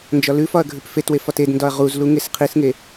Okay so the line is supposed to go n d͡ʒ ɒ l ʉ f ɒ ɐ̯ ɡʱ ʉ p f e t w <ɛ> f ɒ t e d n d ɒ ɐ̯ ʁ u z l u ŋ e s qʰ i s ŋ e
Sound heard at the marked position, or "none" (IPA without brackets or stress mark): e